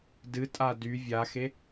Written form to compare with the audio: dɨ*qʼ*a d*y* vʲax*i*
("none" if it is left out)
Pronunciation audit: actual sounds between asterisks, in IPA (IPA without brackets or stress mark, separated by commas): tʼ, y, e